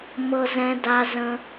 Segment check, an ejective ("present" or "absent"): absent